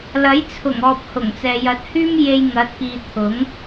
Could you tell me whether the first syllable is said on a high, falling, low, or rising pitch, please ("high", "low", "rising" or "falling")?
rising